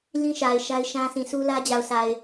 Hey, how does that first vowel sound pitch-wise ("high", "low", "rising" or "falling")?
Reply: high